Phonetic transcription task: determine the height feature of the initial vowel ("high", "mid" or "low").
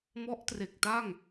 mid